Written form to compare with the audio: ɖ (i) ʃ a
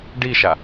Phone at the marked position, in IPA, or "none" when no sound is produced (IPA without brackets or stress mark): i